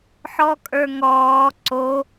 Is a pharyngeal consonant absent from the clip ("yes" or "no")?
no